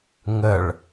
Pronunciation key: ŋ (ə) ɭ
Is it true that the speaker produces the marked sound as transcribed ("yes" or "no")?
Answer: yes